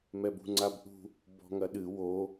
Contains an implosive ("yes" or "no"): yes